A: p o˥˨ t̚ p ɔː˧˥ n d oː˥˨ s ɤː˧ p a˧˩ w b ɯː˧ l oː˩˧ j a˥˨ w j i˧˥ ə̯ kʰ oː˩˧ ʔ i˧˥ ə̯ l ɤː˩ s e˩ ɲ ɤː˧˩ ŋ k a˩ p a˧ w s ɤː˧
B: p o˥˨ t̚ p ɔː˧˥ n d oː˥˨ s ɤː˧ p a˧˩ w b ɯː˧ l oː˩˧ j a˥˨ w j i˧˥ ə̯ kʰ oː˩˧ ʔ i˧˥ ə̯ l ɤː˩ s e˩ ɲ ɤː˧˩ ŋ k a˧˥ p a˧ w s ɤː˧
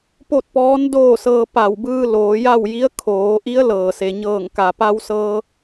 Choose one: A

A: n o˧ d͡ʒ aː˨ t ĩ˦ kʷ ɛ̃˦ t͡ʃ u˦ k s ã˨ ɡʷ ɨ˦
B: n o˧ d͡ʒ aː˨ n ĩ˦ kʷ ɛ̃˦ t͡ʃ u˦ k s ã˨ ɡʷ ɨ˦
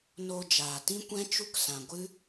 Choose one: A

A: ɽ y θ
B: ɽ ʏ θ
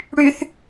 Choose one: A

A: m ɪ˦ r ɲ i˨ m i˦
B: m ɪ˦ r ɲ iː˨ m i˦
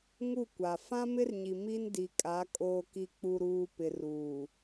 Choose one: A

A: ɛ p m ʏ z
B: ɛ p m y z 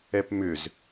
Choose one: A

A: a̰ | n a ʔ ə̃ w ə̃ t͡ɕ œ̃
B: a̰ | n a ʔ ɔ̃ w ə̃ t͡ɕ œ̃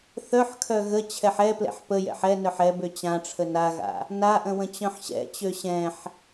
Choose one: A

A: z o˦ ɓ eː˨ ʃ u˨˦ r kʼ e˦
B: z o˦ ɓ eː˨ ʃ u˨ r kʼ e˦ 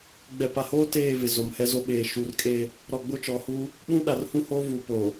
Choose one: A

